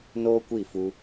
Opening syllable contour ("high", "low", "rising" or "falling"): high